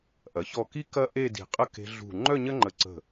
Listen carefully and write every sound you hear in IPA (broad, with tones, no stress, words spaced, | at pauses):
ʔɐ˩˧çɔ˧˩ ki˥ kɐ˥ ʔe˥˧di̤˧˩qʼə˥ ke̤˧ɮṳ˧˩ ŋ͡ǃœ˥˧ɲɐ˥ŋ͡ǃə˧˩ǀə̤˧˩